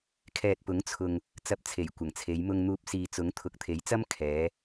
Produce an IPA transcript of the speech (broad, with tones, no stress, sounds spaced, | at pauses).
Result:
kʰ ɛː˨ t̚ p ʊ˨˥ ŋ t͡sʰ ʊ˨ ŋ | t͡s ɐ˧ p̚ t͡sʰ e˨˩ j kʷ ɐ˨˩ ŋ t͡sʰ e˨˧ j m ʊ˨ ŋ n̪ uː˨ p̚ s iː˨ t͡s ʊ˨˥ ŋ t̪ʰ ʊ˨˥ k̚ t̪ʰ e˨˥ j t͡s ɐ˥ m kʰ ɛː˨˧